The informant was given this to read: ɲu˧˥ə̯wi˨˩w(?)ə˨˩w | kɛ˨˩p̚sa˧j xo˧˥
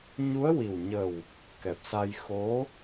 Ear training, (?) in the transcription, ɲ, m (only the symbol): ɲ